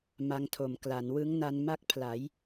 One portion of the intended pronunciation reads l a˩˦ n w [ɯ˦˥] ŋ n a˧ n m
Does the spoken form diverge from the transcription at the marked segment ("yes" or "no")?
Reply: no